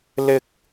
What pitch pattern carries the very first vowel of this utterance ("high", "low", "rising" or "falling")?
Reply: high